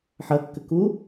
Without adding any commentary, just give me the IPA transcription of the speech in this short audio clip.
ħɐkːɘ ku

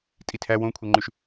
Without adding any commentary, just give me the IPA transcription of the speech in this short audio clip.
tʼitʰæ wõkʷʰɛŋ͡ǃʉʃ

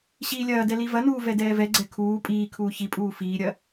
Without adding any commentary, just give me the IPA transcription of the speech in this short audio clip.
ɕiːlʲɐːdɛ livɐnuː vɛdɛːvɛɡ͡ǀɛ kʰuː pʼiːkʰuː çipʼuː fiːɾʲɐ

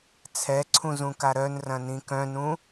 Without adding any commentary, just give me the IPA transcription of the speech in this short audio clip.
t͡sʰɛǀʰũzũka ɾœnrɐ̃nĩ kœ̃nũ

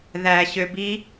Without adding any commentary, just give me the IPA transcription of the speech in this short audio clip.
ðæɕøbi

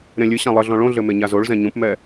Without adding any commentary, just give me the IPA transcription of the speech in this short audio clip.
ɾẽlʲɨ ɕãlˠɘɮɔ̃ ɭõɮɘ meɲazoɭ zɛ̃ɲũpmɛ

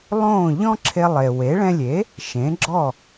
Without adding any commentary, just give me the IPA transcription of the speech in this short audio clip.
lˠõ˥˩ ʎɔ̃˥ǁʰe˧lˠe˩we˩˥ ɭɛ̃˧lʲe˩˥ | ʃẽ˩˥ɡ͡ǁɔ˥˩

